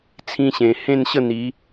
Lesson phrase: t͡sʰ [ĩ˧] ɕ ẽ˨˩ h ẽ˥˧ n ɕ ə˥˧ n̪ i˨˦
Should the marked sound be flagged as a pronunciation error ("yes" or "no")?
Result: no